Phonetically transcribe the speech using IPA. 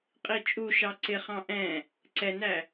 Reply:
qʼ i t͡ʃʼ u ʃ ɑ ǀ ɪ χ ɑ̃ ʔ ɛ̃ | ǀ ɛ n æ

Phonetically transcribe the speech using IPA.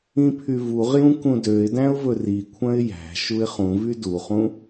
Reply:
ĩ pʰ y v u ʁ j ũ k ũ d ø ɪ̯ d æ̃ ʊ̯ v ɵ r i kʷʰ œ̃ ɪ̯ j æ̤ ʃ u ɪ̯ χ ũ v y d u χ ũ

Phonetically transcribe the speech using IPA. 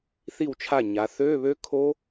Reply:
θ i˥˩ w t͡ʃʰ a˥˩ ɲ a˩˧ θ øː˧˥˧ β ø˦˥ kʰ o˦˥

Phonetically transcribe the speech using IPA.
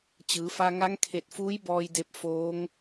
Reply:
t͡ɕ ɯː˩˧ f a˧ ŋ a˧˥ ŋ kʰ e˧˩ t̚ f uː˧˥ j b ɔː˧ j d e˧ p̚ f oː˧˥ ŋ

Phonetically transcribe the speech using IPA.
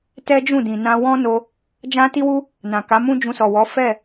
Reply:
t ɛ˦ d͡ʒ ũ˦˨ d ĩ˨ n ã˧ w ɔ̃˦ n o˧ | d͡ʒ ã˦ t i˦ w u˦ | n ã˨ k a˨˦ m ũ˦ d͡ʒ ũ˧ s ɔ˨ w ɔ˨˦ f ɛ˦˨

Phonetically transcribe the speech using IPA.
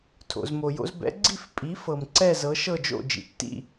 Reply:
tʰ o̰˩ z m o˩ j o̰˧ z b ɛ̰˩˥ ɡ͡ǀ i˥˩ f pʼ i˩˥ f ɤ˩ m ǀ ɛ˥˩ z ɤ˩˥ ʃ ɤ˥˩ d͡ʒ o̰˥˩ d͡ʒ ḭ˩ tː ḭ˥˩

